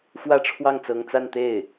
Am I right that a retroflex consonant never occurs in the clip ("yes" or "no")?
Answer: no